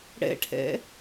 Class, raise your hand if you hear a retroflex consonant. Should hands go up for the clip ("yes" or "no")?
yes